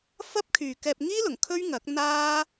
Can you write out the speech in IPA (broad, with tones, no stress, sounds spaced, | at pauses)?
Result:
f ɐ˥ p̚ kʰ yː˨ k ɛː˧ p̚ ŋ iː˥ l ʊ˨˩ ŋ kʰ ɵ˥ ɥ ŋ ɐ˨˥ k̚ n̪ aː˥